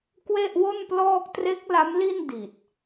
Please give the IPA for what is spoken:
kwe˥˩ʔwo˥˩nplɔː˥˩k̚ tre˦˥k̚ la˦˥mli˥˩n di˨˩t̚

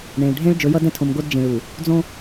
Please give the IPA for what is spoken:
ɳẽ˨ɭ ɖʱẽ˦ɭ d͡ʒɵ˨˦jʌ˦dɛ̃˦tʰõ˨m ɡo˦d d͡ʒĩ˨ɭu˨ | d͡zõ˦

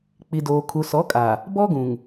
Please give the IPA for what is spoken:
k͡pi˨doː˨ kʰu˨sɔ˨˦kʼa˨ | bɔ˦ ɡũ˨ŋ

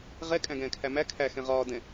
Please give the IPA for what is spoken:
ʁɛ kʼæ̃ɡɛ̃ːkʰæmæ kʰæ xɛ̃ʁɒː dɛ̃

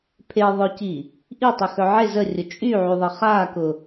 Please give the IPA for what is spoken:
pʰeðˤœci | ʔitˤœxœ ʕe zərʲʊ t͡ʃʼyʕyðˤə χakʊ

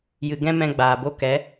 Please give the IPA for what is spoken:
jɨ˨ɡɛ̃˦ mɛ̃˦ ɡ͡baː˨bo˦ kɛ˨˦

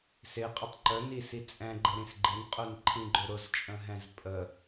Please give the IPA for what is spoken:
sɪqʼətˤ ǃœnisi t͡sʼɛ̃ɡ͡ǃəɾĩs ɡ͡ǃɪnqʼœnǃʰĩɡ͡ǃʏ ɾʊzt͡ʃʼə̃ɦɛ̃z pʼə

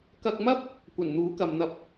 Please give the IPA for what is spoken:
kɐ˧k̚mɐ˥p̚ | kʷɐ˨˩nn̪uː˨˥kɐ˨mn̪ɐ˧p̚

